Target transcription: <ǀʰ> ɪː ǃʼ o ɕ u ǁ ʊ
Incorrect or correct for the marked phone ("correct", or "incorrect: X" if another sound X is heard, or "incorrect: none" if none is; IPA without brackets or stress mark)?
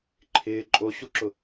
incorrect: ǃʰ